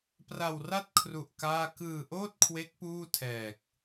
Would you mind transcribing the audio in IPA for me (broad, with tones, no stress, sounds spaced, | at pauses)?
p r a˧ w r a˥˩ t̚ kʰ r u˨˩ ʔ k aː˥˩ k ɯː˧ ʔ oː˥˩ t̚ kʰ w e˦˥ k̚ p uː˥˩ tʰ ɛː˨˩ k̚